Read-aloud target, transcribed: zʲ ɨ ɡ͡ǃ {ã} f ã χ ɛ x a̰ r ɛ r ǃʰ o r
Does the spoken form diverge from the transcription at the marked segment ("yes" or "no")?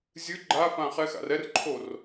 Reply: yes